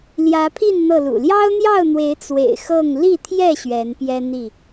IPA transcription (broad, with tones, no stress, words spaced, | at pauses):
ljä˨˦pʰi˥˨n n̪ɤ˥˨lṵ˨˩ ljɑ˦ʊ̯n̪jɑ˥˨ʊ̯n̪we˨˦ɪ̯ t͡swḛ˨˩ɪ̯xɤ˥˨ŋ li˥˨t̪ʰjɛ˥˨ ɕɥɛ˨˦npjɛ˦ n̪i˥˨